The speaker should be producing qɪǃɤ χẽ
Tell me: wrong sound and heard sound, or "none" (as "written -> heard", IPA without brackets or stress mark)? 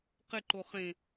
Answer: ɤ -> o